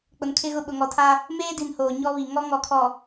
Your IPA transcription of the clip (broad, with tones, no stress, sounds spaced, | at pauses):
k͡p ʊ˨ n kʰ ɪ˦ ɣ ʊ˦ ɓ ʊ˨ ŋ ɔ˨ tʰ a˦ | m eː˦ d i˨ n h oː˨ ɲ ɔ˦ β i˨ ŋ ɔ˦ ŋ ɔ˨ kʰ ɔ˨